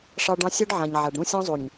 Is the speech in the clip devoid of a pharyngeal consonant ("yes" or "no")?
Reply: no